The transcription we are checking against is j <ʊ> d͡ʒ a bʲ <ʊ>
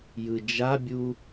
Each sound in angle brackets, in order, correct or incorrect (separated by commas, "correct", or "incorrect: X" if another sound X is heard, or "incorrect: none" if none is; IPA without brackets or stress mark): incorrect: ɯ, incorrect: u